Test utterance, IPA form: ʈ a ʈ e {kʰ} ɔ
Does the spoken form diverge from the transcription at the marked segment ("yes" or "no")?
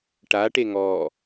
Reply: yes